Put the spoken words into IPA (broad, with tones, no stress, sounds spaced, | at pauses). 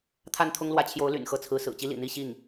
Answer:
t̪ʰ a˥˩ n t̪ʰ ʊ˥ ŋ l w ä˧˥ t͡ɕʰ j o˧˥ ʊ̯ l y̰˨˩ n x ɤ˥˩ t͡sʰ ɹ̩˧˥ s ɹ̩˨˩ t͡ɕ i˥ l ḭ˨˩ n̪ i˥˧ ɕ i˥˩ ŋ